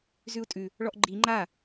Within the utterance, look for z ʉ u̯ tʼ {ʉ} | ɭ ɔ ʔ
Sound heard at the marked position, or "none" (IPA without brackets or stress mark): ʉ